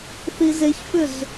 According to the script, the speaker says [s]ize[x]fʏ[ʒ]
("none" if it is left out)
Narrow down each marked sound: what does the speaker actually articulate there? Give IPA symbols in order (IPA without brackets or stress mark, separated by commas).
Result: θ, ç, z